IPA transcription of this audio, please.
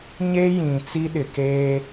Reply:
ɲ e˦ j ĩ˨ t͡s i˦ ɗ ɪ˨ k eː˦

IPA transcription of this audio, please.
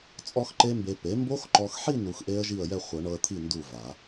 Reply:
t͡sʼ ɔ˦˥ x ǃ e˦˥ m b e˧ p e˩˥ m b o˦˥ x ǃ ɔ˧ x ħ i˥˧ n u˧ x ʔ e˦˥ ə̯ ʒ i˥˩ ə̯ j ɛ˥˧ χʷ ɤ˨˩˦ ɳ ɤ˧ ə̯ t̪ʰ i˥˩ n d u˥˩ v a˨˩˦

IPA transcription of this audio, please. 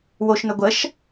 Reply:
w o ʃ n ɵ ɡʷ ə ʃ

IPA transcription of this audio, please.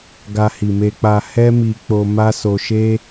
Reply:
ɡ a˧ h i˨ m e˧ k͡p a˧ h ɛ˦ m i˧ k͡p o˧ m a˦ s o˧ ʃ e˦

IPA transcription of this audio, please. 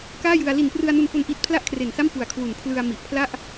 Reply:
k aː˥˩ j ɯ˧ a̯ l i˨˩ n p r ɯ˧ a̯ n u˧ n f o˧ n ʔ i˦˥ t̚ pʰ l a˥˩ ʔ kʰ r e˨˩ n s a˥˩ m p u˨˩ a̯ kʰ w u˨˩ n pʰ l ɯ˧ a̯ m i˨˩ ʔ pʰ l a˥˩ ʔ

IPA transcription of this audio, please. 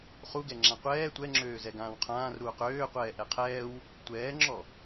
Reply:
χ u ɡ ɛ ŋ͡ǁ ã qʷ ɛː tʷ ɛ ŋ͡ǁ øː z ɛ ɡ ãː w qʰ ãː r ɾ uː q øː qʷ ɛː ʔ ɛ qʰ ɛː w | tʷ ɛː ŋ͡ǁ ɔ

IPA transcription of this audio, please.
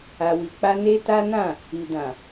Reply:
a˧ w i˧ k͡p a˦ n e˦ t a˦ n ã˦˨ | i˨ d ã˨

